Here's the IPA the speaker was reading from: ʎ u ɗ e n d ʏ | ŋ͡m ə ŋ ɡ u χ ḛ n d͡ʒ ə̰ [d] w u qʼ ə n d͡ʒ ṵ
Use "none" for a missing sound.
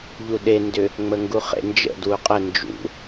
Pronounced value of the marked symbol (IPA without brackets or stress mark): d